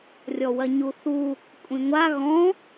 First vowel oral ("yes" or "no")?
yes